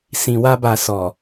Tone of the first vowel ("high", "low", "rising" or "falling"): low